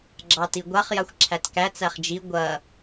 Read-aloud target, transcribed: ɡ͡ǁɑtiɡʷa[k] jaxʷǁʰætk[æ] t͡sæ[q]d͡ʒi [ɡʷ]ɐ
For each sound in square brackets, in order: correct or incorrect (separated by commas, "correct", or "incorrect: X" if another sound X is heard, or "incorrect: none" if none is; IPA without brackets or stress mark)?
incorrect: χ, correct, incorrect: χ, correct